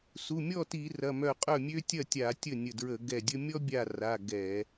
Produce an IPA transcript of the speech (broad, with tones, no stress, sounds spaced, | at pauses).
s u˩˧˩ mʲ ɔ˥˩ t i˧˩˧ r ɐ˩˧˩ m œ˧˩ qʼ œ˥˩ mʲ ø˦ tʲ ɐ˥˩ tʲ a˧˩˧ tʲ ə˥˩ nʲ ə˧˩ d ɹ ə˧˩˧ ɡ ɛ˧˩ dʲ ə˦ mʲ ɔ˦ bʲ a˧˩ r a˩˧˩ ɡ ɛ˧˩˧